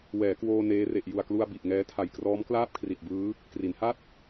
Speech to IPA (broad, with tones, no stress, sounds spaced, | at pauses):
w ɛː˩˦ k w oː˧ n eː˦˥ r e˨˩ ʔ j u˨˩ a̯ k l u˧ a̯ b i˨˩ ʔ ŋ ɛː˦˥ tʰ a˨˩ j k r ɔː˦˥ m k l aː˥˩ p̚ kʰ r i˨˩ t̚ b ɯː˦˥ | k r i˩˦ n h a˥˩ t̚